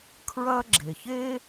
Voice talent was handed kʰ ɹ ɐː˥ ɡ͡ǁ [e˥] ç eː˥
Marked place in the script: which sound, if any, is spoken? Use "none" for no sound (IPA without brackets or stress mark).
e˩